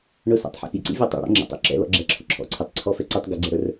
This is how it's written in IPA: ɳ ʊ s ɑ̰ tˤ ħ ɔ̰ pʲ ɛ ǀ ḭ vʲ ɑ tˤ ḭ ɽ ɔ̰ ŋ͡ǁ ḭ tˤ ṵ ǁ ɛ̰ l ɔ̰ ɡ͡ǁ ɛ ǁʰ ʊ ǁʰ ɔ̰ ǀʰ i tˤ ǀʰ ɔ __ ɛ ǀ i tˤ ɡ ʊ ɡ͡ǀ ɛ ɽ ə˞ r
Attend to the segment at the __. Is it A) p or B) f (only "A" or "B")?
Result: B